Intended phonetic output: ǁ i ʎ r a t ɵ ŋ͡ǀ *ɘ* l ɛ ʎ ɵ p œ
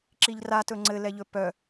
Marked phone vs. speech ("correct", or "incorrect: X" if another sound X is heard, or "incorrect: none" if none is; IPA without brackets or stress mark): correct